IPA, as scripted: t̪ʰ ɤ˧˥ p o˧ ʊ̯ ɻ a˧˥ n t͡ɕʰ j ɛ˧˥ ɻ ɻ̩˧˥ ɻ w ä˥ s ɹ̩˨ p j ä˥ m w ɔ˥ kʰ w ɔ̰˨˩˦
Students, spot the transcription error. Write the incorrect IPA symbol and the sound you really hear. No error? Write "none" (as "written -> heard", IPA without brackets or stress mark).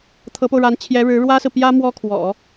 none